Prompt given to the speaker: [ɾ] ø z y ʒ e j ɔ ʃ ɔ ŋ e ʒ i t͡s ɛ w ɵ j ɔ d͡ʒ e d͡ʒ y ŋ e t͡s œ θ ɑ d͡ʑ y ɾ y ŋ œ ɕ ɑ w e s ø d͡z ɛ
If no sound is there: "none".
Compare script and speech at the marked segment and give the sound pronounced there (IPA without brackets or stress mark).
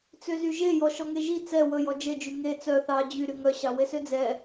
t͡s